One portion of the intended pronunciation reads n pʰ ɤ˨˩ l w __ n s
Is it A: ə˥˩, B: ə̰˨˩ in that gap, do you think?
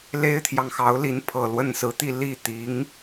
A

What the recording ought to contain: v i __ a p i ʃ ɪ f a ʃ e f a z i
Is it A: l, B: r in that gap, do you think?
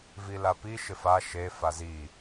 A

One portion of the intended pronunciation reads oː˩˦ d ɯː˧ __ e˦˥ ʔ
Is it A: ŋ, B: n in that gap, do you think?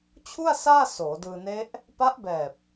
B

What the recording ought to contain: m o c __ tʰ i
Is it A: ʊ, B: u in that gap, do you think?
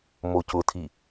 A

